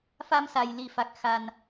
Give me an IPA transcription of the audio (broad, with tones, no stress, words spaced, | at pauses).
fa˧msa˨˩j li˨˩ fa˨˩k̚xa˨˩n